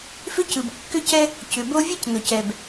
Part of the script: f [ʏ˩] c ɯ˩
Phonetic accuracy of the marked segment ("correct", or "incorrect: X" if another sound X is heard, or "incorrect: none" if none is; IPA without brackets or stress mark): incorrect: ʏ˥